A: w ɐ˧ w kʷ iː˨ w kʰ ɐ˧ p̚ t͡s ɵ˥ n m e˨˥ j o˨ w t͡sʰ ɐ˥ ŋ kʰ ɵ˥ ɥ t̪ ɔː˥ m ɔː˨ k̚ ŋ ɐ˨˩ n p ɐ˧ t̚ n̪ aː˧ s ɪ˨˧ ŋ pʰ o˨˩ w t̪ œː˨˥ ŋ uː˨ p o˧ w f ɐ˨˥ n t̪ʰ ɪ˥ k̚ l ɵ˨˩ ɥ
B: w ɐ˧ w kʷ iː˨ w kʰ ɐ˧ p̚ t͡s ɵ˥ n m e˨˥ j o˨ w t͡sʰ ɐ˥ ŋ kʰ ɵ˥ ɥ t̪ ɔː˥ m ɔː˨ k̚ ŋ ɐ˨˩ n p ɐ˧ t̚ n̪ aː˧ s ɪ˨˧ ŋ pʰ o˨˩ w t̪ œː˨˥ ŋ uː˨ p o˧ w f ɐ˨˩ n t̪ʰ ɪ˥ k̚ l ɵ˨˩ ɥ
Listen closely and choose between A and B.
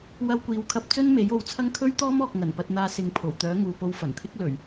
B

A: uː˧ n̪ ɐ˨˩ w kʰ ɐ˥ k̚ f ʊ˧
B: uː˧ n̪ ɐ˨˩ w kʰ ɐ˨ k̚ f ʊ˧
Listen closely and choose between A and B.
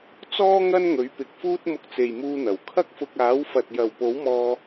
A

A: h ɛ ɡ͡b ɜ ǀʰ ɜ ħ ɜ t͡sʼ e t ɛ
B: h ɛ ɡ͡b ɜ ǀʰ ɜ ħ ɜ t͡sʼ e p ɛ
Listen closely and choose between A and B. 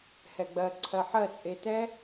A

